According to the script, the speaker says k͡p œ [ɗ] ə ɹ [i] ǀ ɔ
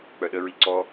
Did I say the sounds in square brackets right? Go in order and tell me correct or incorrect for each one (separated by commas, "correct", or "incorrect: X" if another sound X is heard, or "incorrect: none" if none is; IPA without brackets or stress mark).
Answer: correct, correct